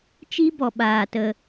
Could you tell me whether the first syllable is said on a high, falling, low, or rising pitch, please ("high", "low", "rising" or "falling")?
high